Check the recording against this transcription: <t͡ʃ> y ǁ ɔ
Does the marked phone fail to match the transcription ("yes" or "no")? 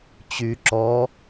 yes